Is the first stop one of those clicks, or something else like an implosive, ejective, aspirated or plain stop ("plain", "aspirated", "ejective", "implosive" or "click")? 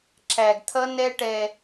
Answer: click